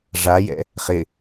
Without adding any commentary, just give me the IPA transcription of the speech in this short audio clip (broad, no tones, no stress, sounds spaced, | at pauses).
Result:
ʐ a j ɛ̰ | χ ɪ